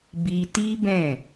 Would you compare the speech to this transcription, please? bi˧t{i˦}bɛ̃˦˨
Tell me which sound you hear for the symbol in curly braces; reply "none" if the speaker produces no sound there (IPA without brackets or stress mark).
i˦